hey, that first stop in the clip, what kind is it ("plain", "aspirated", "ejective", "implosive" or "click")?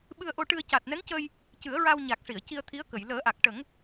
implosive